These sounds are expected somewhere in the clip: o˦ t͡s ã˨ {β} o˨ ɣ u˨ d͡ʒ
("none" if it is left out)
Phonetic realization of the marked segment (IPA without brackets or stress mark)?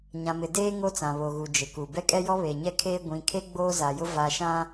β